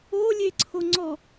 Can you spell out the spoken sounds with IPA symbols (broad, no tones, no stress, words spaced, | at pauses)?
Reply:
olʲeǀʰoŋ͡ǀɔ